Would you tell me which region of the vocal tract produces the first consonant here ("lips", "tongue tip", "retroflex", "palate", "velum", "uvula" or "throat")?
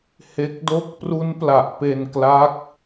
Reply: throat